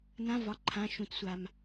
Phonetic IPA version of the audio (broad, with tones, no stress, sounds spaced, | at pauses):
n ã˧˥˧ v ɒ˩˧˩ ǃʰ ã˩˧˩ ʃ ũ˩ t sʷ a˩ m